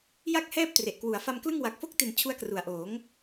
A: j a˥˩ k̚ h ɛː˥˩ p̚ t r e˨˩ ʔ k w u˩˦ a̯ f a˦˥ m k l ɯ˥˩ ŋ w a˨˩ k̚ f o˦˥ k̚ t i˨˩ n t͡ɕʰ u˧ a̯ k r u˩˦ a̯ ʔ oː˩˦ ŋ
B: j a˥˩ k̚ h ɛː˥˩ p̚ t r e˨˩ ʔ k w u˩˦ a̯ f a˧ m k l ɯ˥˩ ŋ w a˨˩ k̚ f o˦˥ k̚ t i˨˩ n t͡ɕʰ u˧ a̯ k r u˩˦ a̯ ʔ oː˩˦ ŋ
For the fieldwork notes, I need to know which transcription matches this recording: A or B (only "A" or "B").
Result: B